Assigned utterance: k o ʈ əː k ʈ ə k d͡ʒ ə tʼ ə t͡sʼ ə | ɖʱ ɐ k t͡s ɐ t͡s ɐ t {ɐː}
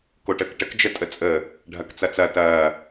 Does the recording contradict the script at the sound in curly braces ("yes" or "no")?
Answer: no